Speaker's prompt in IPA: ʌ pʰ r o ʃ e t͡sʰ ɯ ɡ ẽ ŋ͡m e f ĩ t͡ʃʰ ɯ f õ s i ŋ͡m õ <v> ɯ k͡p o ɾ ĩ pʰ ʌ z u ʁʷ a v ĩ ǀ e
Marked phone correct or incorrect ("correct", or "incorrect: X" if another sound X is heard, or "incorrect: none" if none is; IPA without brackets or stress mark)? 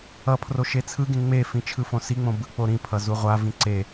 incorrect: b